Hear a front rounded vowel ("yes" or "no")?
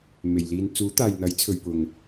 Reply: no